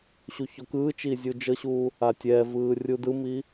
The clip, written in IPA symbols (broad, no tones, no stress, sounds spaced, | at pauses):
ɕ u ç ɔ k ɯː t͡ʃ iː zʲ u d͡ʒ ɤ ɕ uː | a tʲ ɛ v ɯː rʲ u d ɯ m i